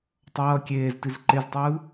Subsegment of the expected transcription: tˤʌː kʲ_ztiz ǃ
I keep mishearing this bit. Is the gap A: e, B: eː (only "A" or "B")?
B